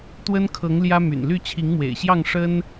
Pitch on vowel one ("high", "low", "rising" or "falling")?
high